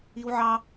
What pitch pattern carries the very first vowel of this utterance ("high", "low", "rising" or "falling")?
high